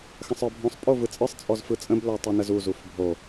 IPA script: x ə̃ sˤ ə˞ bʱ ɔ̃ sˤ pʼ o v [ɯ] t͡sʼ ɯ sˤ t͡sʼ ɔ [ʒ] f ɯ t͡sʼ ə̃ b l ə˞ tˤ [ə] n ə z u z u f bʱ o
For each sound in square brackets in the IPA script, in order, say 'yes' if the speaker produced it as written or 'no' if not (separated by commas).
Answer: yes, no, no